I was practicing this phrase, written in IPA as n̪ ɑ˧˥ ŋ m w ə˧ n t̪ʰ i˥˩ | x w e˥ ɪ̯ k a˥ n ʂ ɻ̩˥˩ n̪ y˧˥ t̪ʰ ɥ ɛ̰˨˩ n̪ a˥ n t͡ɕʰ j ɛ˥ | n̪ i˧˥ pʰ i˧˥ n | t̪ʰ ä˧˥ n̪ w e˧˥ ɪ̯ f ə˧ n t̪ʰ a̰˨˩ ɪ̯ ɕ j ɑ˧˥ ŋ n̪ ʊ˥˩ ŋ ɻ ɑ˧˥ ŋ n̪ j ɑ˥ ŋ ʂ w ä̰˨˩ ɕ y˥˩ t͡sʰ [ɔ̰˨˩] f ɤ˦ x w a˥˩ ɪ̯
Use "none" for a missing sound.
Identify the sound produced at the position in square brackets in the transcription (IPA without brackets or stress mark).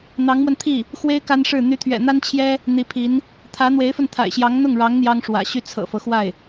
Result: ɤ̰˨˩